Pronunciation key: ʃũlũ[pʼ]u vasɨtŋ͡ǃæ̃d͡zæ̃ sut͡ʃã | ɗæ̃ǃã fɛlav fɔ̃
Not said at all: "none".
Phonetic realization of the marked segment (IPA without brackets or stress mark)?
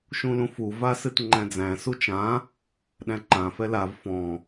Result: f